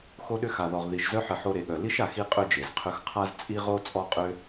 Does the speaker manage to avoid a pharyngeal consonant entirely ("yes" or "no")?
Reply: no